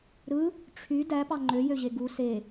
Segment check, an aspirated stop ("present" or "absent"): present